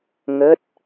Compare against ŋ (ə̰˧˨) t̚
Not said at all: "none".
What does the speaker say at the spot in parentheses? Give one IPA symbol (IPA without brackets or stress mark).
ə˦˥